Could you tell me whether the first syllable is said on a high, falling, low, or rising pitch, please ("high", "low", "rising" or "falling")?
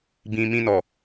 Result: low